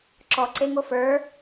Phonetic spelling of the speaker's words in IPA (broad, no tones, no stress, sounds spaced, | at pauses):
ǁ ɔ ǀ e ŋ o f ə˞